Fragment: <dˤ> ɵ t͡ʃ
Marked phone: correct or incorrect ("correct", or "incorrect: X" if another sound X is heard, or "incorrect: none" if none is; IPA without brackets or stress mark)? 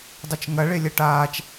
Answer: correct